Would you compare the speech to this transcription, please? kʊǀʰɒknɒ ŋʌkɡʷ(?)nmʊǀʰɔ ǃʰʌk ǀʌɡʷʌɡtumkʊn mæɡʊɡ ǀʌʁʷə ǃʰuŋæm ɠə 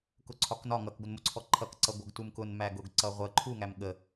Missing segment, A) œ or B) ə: B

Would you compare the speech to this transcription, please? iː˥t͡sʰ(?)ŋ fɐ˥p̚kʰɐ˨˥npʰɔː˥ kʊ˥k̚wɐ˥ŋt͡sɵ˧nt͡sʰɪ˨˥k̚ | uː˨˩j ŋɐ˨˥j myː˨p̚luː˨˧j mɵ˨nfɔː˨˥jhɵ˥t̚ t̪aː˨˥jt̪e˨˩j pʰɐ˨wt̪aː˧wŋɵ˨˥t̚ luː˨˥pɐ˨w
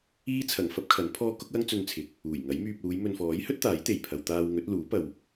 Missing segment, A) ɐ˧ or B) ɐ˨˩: B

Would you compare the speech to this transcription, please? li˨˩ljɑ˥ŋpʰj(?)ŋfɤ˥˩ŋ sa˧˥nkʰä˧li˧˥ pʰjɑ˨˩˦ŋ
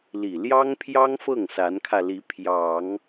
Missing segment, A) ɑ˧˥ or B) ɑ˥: B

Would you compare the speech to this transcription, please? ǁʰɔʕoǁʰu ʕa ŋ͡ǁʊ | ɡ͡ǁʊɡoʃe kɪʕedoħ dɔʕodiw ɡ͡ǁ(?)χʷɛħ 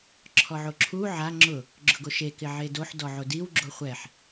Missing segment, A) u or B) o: B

